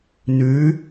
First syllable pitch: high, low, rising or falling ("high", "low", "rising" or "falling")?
rising